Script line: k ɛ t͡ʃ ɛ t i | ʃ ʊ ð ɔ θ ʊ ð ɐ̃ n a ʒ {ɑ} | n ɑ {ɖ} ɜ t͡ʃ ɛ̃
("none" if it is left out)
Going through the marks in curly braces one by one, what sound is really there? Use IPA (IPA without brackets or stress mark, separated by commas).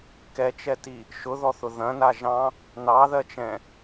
ɑ̃, ð